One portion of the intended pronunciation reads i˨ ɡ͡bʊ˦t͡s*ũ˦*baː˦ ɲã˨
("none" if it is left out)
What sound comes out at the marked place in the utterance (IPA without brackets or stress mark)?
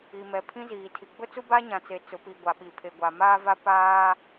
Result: u˦